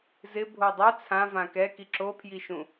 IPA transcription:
z ɪ bʱ o dˤ ɛ t͡sʰ ã v ã k ɛ k i ǁ o pʰ j i ʃ ũ

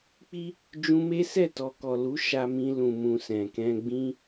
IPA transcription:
k͡p i˦ | d͡ʒ ũ˧ m e˦ s ɛ˦˨ t ɔ˨ k ɔ˨ l u˨˦ ʃ a˧ m ĩ˧ l ũ˨ m ũ˨ s ɛ̃˨ k ɛ̃˧ ɡ͡b ĩ˦

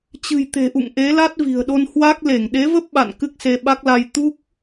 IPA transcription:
t͡ɕ ɨ̤˨˩ j t̪ e̤˨˩ ʔ ṵ˧˨ ŋ ʔ e˨˦ l a˦˥ t̚ v i̤˨˩ ə̯ ɗ o˧ n h w a˦˥ k̚ l e˧˩ ŋ ɗ e˨˦ v ə˦˥ p̚ ɓ a̰˧˨ n k ɨ˦˥ k̚ s e˧ ɓ a˦˥ k̚ l a˧ j t̪ u˦˥ k̚

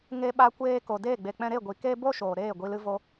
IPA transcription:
ŋ e˧ ɓ a˧ kʷ eː˦ k o˨ d eː˦˨ ɡ͡b e˨ k͡p ɛ̃˧ ɾ e˦˨ ɡʷ i˨ k e˦ b o˦ ʃ oː˨ ɾ eː˦˨ ɡʷ i˧ l ɨ˦ v o˦

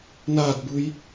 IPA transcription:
n a d b ɯ j

